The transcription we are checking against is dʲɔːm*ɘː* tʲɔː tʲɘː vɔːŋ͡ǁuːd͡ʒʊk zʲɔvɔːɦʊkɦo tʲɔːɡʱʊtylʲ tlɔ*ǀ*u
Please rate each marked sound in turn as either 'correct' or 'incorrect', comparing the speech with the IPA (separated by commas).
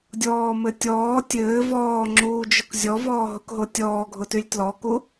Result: incorrect, incorrect